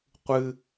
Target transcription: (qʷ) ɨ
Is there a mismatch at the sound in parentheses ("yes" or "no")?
no